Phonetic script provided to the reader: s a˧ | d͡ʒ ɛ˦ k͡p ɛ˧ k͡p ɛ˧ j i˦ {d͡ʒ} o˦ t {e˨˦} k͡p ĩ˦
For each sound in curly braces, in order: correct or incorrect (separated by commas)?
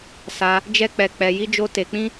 correct, incorrect